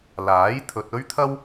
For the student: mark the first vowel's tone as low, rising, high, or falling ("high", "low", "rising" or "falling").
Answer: rising